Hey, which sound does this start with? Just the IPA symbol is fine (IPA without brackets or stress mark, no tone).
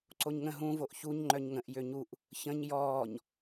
ǀ